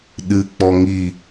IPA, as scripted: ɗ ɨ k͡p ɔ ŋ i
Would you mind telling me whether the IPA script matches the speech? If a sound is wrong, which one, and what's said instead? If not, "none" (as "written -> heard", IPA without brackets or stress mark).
none